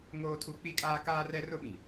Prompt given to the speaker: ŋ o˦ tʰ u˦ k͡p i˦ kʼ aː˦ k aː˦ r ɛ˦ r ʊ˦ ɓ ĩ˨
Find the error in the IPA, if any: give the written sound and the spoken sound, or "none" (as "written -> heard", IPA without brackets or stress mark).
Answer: o˦ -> oː˦